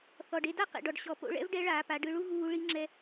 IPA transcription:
θɔ˩ɖ e˧da˥ qḛ˩ɖɔ˩ɖ ɕɔ˩˧ po̰˧ɭɛ̰˥vɖɛ˧˥ɭaː˩˧ pa˩˧ɖɯ˧ɭu˥ ɣuː˧ ɭi˧˥ŋ͡ǁɛ˧

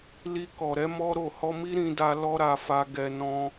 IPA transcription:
li˧kɔ˨ɾɛ˨˦ mɔ˦ ɾo˦˨ hɔ˧mi˦ ɾĩ˧da˧ lɔ˦ɾa˧fa˧ɡɛ˧ nɔ̃˧

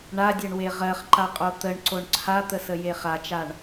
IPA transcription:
ɳadʲɜɳwe ʁɜχǃaqʼo t̪əɳǀoɳ ǀʰat̪əsəje χat͡ʃaɳ

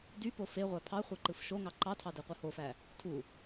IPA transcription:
dypo feʁʷæ pʰɑχʷe ǃɯfʃoŋɑ ǃɑtʰɑ deqʷɯhofæ | tʰu

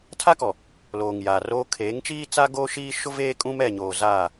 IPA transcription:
tʰa˦kɔ˨ | loː˨ŋ jaː˨roː˦ kʰeː˨˦ŋt͡ʃiː˦ t͡sa˦ɡoː˦ ʃiː˦ʃʊ˦veː˦ kʼũ˦mɛ˦˨ɲoː˨ zaː˦˨

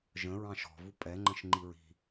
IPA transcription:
ʒə̃ ɹɑ̃ʃɔ̤vu pʼɛŋ͡ǃə̃ʃ ŋ͡ǃiɹi̤

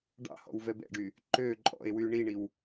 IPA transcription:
ɖɑ̰ hɔ̰wvɛbɛ̰ɖy | ǃø ǃʼɔ̰e̯wy ɳiɳiw

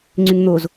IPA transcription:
ŋ͡ǀyŋn̪oz

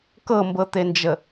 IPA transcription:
kɤmbɤt̪end͡ʒə

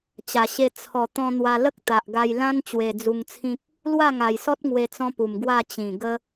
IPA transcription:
t͡ɕa˨˩ɕe˧ t͡sʰɔ˨˩ t̪ɔ̃˧n̪wa˧ lə˦k̚t̪a˨ʔɡa˧j lã˦n t͡ɕwe˧d͡zu˧ŋt͡sʰĩ˦k̚ | lwa˥˧ŋa˨˩jsɔ˦t̚ŋwe˧ t͡sɔ̃˦pu˨˩mɡwa˥˧ t͡ɕĩ˨˩ɡə˦

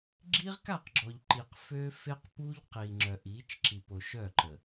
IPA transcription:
ɡ͡ǁi˦ʁka˦˨qɡ͡ǁɔ˨ʎ ǃi˨qfø˦ fe˦qpu˦ʎ qi˨ŋ͡ǁœ˨ʔi˨˦t͡ʃǁi˨ po˨ʃœ˦˨ǃə˨

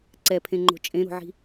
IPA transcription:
ǀɛpʰẽŋ͡ǃo̤ t͡ʃʼẽɾo̤ʕi̤

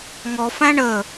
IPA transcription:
ŋɔ fæ̃ɳə

